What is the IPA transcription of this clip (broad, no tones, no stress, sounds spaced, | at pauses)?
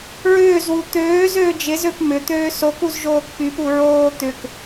ɹ ʏː z w u t̪ øː z øː d͡ʒ ɪ z ø p m ʏ t̪ øː s o k u z ʒ oː k p y p u ɹ oː t̪ ʏ k